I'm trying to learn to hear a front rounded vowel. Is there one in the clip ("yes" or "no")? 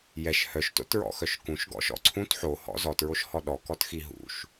yes